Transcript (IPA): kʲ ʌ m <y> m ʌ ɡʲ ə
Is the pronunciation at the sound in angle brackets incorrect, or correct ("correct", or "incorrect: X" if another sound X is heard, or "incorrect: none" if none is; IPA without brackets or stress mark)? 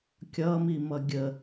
incorrect: i